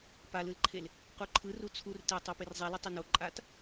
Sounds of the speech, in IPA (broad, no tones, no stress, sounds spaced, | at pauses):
p a l ɯ l ǃʰ e l | q u ǃʰ ɯ r u t͡sʰ u r t e tˤ o p e r zˤ i l ɛ tˤ e n o ǃʼ a t